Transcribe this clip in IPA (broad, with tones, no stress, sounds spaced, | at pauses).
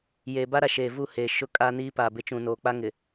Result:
j e˨ b a˦ ɾ a˨ ʃ eː˨ v u˦˨ h e˨ ʃ ʊ˦ kʼ a˦ n iː˦ p a˨ b ɪ˦ t͡ʃ ũ˨ n oː˨ k͡p a˦ ŋ ɪ˨